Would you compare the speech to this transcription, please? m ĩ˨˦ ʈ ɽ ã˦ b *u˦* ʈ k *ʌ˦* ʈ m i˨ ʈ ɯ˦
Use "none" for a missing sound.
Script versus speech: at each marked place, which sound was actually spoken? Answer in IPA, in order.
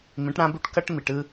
u˦, ʌ˦

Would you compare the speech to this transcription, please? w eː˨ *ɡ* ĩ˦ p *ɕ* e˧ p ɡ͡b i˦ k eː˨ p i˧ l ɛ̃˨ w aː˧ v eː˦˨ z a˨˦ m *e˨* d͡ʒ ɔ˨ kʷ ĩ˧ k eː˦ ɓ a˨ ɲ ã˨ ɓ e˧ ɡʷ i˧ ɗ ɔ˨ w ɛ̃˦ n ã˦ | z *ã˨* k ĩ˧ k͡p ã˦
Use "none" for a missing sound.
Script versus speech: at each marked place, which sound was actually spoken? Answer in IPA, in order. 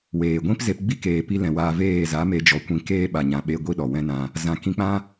ɡʷ, z, e˧, ã˨

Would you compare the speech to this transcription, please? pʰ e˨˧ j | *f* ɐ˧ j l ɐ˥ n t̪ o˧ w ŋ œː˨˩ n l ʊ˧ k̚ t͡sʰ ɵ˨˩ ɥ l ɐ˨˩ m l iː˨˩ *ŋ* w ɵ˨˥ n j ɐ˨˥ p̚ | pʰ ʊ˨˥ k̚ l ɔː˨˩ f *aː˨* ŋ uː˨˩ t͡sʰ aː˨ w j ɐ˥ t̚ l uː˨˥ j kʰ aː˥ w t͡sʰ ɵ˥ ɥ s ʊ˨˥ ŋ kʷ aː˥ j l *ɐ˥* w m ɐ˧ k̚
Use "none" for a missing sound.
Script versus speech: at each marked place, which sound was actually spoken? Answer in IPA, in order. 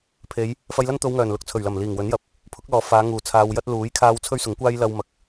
f, ŋ, aː˨˧, ɐ˥

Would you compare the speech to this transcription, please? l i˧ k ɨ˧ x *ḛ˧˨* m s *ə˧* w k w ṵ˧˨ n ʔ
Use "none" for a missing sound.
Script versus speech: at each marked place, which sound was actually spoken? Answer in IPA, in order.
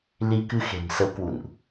e̤˨˩, ə˨˦

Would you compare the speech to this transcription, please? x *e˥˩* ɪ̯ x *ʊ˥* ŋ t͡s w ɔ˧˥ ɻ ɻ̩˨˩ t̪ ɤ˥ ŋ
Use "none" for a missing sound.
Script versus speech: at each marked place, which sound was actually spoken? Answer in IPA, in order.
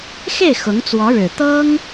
e˥˩, ʊ˧˥

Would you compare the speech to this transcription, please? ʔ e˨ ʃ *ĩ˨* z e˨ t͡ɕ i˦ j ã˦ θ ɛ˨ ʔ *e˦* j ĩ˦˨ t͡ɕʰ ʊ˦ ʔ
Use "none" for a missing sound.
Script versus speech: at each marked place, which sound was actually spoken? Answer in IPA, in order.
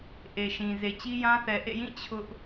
ĩ˨, ḛ˦˨

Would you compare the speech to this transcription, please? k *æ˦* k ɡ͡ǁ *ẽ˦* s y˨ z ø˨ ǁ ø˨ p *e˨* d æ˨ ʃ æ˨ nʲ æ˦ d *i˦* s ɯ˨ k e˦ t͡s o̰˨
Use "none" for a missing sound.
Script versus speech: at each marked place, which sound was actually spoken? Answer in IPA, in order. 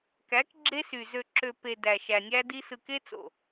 æ˨˦, e˦, e˨, i˦

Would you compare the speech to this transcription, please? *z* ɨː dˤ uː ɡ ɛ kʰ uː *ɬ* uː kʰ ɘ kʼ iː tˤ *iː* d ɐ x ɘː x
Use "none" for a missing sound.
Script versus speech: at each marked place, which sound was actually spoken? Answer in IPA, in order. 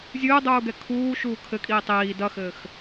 zʲ, ʃ, iː

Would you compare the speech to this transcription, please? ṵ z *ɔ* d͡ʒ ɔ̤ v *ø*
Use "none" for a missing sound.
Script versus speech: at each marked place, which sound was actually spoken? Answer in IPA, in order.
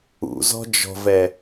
ɔ̤, ɛ

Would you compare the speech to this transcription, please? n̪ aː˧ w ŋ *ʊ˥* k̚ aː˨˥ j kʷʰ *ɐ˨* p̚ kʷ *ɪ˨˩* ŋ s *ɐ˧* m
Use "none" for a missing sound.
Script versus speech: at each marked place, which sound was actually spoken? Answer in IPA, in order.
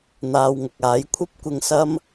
ʊ˨, ɐ˥, ɪ˧, ɐ˥

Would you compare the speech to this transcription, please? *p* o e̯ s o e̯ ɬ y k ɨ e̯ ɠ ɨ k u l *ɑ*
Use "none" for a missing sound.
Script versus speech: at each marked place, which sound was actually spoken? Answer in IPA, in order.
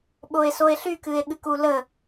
ɓ, ə

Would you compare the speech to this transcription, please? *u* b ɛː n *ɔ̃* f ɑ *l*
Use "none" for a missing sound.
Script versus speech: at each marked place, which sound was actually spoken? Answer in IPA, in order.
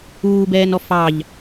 uː, ɔ, ʎ

